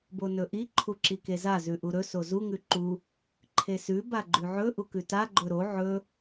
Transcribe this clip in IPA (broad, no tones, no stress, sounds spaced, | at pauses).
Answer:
b o n ɵ ʔ i ǃʰ u ǁ i k e z a z ʉ ʔ u ɾ ɵ s o z u ŋ ʉ ǃ u | ǃʰ e s ʉ b a ɡ͡ǃ ʉ ʕ ɵ ʔ u k ʉ t a ɡ͡ǃ ɵ ɾ o ʕ ɵ